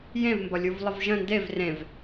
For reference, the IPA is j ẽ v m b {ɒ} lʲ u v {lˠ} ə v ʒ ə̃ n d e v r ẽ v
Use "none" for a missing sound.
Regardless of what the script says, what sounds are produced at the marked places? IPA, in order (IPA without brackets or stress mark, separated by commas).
ɒ, lˠ